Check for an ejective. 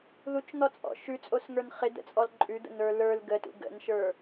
present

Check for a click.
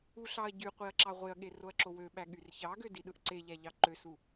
present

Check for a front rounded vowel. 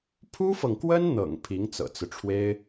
absent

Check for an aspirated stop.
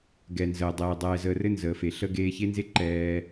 absent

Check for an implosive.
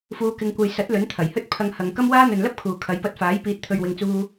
absent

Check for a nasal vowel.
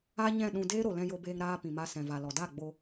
present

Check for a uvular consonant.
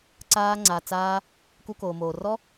absent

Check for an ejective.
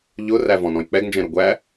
absent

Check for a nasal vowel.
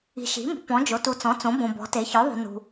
present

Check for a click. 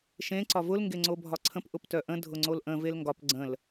present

